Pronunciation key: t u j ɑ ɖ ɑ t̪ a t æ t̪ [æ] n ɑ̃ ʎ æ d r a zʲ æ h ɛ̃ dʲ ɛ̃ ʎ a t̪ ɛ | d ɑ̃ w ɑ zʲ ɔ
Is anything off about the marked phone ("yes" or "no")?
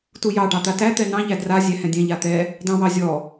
yes